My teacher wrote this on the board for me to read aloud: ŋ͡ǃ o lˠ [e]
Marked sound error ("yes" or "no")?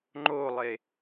no